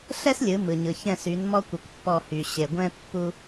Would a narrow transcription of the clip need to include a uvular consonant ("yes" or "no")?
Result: no